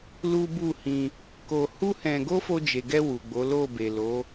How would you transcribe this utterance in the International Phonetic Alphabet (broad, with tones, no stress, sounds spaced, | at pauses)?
l u˦ b u˦˨ h ĩ˧ | k o˧ h u˦ h ɛ̃˧ ɡ o˦ f o˧ d͡ʒ e˨ ɡ ɛ˧ w u˨ ɡ͡b o˨˦ l o˦˨ b e˨ l o˨˦